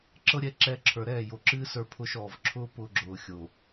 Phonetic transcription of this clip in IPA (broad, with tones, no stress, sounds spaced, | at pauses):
ǁ ɤ˦ ɾʲ ɛ˧ ǁ ɛː˧ ǁʰ ə˞˨ ɾ ɛː˦˨ j o˨ ǁ ɨː˦ s ə˞˧ pʰ ʊː˧ ʃ ɔː˨ v ǁʰ ʊː˦ p ʊː˧ ɡ͡ǁ ʊː˨ xʲ o˨